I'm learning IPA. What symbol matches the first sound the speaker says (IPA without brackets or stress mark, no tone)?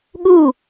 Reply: ɠ